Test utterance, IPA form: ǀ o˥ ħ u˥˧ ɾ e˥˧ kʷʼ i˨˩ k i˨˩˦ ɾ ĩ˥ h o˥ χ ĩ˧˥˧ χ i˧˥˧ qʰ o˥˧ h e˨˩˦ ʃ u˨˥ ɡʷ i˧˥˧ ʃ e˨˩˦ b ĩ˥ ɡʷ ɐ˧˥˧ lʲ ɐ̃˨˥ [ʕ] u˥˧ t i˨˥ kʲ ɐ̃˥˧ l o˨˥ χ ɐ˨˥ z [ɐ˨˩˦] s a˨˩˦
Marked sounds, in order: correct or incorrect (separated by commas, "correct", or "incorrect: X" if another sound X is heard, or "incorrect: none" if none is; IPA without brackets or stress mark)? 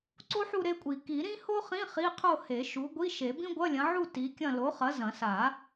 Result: correct, incorrect: ɐ̃˨˩˦